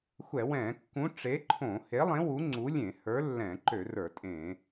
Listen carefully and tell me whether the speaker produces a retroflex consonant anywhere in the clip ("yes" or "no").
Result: yes